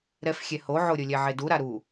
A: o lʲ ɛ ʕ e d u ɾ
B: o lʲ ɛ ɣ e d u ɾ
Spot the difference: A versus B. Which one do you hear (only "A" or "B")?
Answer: A